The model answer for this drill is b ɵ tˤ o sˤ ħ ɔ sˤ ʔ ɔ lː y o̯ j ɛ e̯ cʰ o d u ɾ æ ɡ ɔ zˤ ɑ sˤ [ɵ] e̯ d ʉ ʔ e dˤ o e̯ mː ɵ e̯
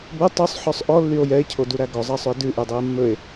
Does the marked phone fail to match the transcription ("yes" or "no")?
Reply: no